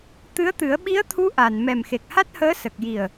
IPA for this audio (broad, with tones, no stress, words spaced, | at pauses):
t̪ɨ˧˥ə̯t̪ɨ˨˩˦ə̯ ɓi˧˥ə̯t̪ʰu˧˥ ʔa˨˩n mɛ˨˩mxe˨˩k̚ha˦˥t̚həː˧˥ sə˨˩k̚ji˨˩ə̯